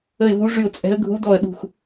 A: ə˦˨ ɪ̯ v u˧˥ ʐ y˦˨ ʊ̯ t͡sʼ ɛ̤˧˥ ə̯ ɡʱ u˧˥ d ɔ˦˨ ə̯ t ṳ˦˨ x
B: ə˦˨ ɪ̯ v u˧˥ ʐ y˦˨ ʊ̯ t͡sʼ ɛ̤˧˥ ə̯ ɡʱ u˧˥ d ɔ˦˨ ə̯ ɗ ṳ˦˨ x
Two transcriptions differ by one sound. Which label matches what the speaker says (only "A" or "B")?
B